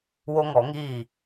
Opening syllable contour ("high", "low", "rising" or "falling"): high